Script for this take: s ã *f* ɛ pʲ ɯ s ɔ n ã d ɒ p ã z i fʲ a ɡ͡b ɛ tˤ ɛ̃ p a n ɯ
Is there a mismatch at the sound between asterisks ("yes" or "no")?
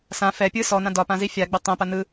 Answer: no